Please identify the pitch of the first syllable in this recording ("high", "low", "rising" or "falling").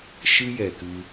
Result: high